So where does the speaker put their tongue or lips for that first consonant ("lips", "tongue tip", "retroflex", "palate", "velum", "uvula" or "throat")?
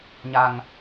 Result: palate